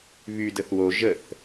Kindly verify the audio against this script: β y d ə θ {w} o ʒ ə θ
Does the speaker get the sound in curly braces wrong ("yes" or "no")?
no